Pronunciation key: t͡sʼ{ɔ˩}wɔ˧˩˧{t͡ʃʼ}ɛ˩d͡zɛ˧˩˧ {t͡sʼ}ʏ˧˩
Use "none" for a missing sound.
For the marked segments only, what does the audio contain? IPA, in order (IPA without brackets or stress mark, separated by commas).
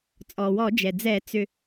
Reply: ɔ˩, d͡ʒ, t͡s